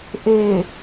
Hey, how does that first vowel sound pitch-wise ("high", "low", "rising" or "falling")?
low